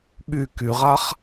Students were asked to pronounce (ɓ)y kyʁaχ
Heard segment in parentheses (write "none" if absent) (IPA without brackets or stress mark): ɓ